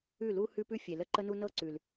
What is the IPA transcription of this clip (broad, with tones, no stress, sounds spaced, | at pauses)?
ʉ˦˨ l u˦ h ʉ˦ p ʉ˦ fʲ e˨ l ə˦˨ ǃ ə˦ n u˦ n ɤ˦ ǀ ʉ˨ l